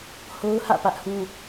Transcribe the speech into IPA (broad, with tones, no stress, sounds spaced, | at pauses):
h o˦ ʊ̯ h ä̰˦˨ p ä˦ ʔ h ũ˦